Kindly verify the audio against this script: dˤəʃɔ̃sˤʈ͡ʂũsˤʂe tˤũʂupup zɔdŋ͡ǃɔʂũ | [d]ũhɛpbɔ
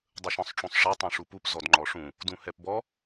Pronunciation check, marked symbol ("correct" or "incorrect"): correct